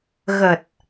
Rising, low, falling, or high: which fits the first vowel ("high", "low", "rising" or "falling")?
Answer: low